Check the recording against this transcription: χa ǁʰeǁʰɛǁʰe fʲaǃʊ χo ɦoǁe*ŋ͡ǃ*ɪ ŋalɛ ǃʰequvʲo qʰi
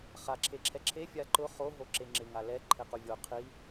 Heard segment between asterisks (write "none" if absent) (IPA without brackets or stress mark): ŋ͡ǁ